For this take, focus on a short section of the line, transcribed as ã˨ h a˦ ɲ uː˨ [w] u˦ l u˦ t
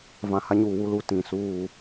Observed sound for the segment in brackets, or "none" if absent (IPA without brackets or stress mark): w